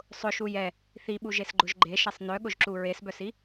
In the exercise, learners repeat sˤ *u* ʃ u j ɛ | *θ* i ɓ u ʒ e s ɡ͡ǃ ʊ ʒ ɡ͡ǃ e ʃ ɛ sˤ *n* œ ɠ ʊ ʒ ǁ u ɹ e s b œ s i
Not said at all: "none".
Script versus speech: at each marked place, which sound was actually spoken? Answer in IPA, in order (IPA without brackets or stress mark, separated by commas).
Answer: ʊ, θ, n